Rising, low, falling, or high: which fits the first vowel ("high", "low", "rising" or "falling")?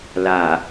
low